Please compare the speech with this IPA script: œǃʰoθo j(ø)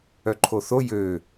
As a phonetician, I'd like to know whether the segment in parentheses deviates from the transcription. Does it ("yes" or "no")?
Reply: no